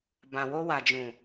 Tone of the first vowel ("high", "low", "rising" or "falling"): low